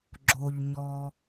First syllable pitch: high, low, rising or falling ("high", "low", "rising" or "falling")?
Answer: low